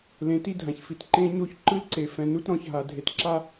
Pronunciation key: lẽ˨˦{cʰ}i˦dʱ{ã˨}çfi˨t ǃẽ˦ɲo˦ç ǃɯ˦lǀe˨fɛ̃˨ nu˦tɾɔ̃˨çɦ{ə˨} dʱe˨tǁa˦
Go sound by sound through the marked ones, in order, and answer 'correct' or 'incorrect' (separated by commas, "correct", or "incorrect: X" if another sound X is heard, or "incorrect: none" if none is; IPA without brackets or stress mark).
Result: incorrect: t, correct, incorrect: a˨